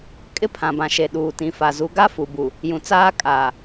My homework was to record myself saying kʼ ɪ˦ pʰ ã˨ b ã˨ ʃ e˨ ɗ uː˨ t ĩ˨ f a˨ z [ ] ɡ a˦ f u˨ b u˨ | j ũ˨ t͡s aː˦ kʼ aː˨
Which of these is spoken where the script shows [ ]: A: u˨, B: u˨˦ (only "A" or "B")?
B